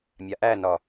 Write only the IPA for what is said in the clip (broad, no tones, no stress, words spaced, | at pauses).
mʲaʔænɒ